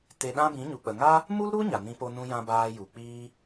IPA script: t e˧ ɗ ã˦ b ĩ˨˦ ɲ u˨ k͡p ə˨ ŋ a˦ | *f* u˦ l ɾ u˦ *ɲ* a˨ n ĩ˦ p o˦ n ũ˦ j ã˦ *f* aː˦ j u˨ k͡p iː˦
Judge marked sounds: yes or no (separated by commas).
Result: no, yes, no